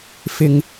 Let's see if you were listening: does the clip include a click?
no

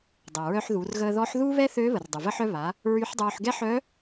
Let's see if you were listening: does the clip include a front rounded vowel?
yes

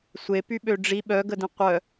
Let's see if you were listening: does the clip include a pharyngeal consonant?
no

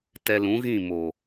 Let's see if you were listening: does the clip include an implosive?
no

